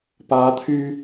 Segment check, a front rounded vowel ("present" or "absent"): present